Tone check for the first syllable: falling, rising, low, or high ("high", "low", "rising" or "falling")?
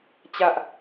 high